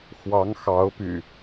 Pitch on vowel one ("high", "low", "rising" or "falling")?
rising